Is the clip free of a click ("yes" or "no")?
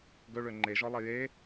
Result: no